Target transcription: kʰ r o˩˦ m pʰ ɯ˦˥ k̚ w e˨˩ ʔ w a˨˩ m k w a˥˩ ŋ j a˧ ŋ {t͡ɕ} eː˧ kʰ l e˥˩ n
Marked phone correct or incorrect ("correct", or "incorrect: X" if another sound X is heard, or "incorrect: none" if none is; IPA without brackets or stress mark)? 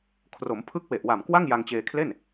correct